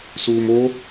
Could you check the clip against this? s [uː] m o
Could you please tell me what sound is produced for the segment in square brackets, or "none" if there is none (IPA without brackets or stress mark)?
uː